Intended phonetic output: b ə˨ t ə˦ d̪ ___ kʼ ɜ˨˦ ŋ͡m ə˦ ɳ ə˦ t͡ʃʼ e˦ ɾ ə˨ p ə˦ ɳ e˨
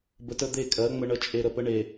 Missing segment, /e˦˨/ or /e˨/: e˦˨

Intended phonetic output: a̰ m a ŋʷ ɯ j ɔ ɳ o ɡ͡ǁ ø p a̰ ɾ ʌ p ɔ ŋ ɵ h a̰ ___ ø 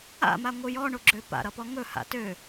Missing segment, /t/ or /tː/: t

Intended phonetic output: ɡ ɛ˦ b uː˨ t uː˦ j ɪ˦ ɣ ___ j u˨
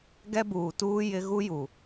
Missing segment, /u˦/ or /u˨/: u˦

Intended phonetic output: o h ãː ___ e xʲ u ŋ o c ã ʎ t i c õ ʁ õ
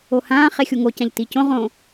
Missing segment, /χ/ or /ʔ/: χ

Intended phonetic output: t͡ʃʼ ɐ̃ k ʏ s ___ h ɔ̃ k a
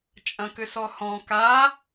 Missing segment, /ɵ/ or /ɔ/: ɔ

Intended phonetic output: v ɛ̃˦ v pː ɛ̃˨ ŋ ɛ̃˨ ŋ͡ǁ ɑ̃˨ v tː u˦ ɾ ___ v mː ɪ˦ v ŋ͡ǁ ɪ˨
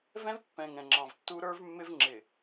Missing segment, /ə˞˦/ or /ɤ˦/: ə˞˦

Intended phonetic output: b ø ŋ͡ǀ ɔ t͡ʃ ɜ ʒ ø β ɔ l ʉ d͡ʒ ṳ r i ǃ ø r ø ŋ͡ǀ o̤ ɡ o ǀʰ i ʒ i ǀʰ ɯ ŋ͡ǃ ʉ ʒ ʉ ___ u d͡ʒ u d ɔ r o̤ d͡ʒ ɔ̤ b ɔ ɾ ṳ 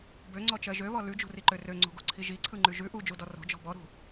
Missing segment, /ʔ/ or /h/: ʔ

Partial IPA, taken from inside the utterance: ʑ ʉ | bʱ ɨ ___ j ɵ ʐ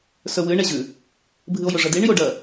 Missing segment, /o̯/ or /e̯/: o̯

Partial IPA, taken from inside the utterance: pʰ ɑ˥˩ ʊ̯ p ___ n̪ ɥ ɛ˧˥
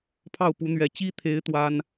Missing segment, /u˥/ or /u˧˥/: u˧˥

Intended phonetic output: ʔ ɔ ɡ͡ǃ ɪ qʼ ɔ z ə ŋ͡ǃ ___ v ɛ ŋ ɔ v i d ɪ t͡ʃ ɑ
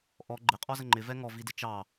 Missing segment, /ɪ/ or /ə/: ɪ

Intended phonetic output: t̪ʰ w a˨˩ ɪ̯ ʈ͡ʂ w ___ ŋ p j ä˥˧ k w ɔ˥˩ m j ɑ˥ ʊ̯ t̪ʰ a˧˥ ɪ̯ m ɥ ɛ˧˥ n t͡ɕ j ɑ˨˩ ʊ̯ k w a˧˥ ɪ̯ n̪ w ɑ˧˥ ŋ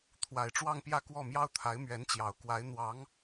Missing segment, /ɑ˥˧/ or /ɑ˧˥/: ɑ˥˧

